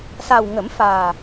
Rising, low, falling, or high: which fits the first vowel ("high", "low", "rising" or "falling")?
low